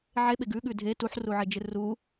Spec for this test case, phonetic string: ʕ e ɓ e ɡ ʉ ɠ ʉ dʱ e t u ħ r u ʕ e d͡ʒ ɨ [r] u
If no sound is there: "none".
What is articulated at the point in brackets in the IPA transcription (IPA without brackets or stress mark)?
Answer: r